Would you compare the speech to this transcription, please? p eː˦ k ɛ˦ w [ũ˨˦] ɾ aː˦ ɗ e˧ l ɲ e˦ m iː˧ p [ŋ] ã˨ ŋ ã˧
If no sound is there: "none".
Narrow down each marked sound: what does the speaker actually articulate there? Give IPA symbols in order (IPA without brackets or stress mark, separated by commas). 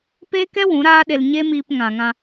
ũ˨˦, ŋ